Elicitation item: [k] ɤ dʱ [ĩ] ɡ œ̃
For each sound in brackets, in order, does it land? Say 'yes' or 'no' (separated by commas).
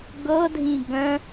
no, yes